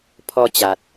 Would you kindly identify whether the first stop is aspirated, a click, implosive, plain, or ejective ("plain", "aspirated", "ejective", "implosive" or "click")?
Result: aspirated